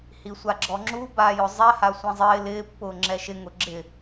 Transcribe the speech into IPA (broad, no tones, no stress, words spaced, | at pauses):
hisʷaɡ͡ǁɔŋ͡ǁu baːjʊzˤɛ hasʷĩzˤɪː lɪː pːʊːŋ͡ǁɛʃɪ ŋʊɡ͡ǁɪ